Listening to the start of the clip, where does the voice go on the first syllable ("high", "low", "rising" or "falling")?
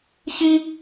high